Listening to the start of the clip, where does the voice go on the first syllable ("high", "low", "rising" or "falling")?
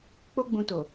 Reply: high